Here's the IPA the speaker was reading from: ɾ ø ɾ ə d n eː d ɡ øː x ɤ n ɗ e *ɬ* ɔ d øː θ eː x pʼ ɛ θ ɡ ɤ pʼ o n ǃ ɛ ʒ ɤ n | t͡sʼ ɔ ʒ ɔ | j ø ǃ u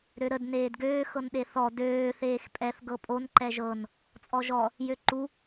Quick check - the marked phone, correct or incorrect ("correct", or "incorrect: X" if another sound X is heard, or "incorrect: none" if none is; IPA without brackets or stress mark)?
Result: incorrect: θ